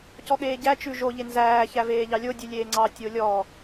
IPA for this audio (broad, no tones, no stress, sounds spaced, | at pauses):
c ɔ ɠ eː ɟ æ t͡ʃ ʉ ʒ o ʎ e n z æː ç æ v eː ʎ ɑ lʲ o dʲ ʉ lʲ eː ŋ͡ǀ ɑ tʲ o lʲ ɔ